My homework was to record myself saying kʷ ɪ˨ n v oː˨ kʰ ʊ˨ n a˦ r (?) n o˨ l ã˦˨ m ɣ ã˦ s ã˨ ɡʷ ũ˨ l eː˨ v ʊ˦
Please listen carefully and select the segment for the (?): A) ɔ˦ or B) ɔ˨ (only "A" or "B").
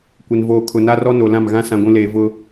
A